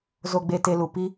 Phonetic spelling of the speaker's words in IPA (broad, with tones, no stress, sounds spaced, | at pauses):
z o˦ ɡ͡b e˧ t e˧ l u˨ p i˦